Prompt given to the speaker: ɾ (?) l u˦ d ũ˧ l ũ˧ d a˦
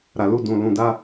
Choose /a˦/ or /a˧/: a˧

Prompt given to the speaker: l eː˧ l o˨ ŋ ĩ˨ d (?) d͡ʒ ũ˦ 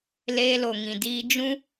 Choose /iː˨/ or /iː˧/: iː˧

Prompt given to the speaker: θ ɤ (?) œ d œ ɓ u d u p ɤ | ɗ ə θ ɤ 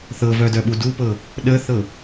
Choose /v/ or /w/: v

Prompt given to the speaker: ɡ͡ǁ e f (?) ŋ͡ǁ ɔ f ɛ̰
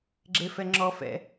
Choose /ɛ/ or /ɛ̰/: ɛ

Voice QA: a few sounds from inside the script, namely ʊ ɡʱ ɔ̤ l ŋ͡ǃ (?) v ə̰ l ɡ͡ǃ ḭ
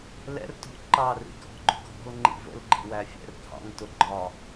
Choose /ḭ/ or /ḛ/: ḭ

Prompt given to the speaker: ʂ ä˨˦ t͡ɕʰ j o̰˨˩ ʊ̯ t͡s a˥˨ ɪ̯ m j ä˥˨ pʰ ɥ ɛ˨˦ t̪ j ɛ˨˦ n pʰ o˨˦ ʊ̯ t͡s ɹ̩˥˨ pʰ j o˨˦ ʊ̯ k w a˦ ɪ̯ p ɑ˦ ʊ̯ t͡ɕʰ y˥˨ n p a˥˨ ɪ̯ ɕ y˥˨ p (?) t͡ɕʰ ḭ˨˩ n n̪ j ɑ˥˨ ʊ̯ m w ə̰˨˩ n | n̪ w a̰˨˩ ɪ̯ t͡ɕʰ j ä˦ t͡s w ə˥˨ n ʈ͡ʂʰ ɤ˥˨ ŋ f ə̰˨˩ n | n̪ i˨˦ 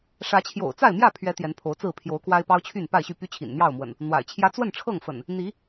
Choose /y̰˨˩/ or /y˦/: y˦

